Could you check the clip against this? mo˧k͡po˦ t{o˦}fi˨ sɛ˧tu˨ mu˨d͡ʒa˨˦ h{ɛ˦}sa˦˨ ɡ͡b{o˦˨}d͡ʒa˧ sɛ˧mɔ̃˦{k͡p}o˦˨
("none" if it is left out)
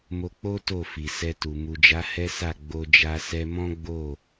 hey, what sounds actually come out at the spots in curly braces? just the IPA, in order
o˦˨, ɛ˦, o˧, ɡ͡b

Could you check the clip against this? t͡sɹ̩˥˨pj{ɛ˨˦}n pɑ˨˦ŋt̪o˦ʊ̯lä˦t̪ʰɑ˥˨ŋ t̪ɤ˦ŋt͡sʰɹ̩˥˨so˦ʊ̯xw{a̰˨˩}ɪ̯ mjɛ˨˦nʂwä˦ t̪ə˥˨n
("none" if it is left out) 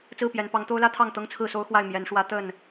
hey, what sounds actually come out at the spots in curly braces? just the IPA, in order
ɛ˨˦, a˥˨

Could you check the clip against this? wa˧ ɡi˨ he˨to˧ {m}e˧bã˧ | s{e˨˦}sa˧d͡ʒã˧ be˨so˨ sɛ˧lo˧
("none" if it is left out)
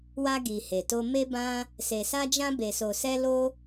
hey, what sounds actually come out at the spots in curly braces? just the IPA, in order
m, e˨

